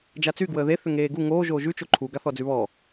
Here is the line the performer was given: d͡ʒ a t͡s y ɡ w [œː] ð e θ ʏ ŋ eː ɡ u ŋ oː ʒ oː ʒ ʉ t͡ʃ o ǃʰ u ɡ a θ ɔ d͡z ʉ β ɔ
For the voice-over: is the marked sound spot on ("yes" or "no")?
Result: no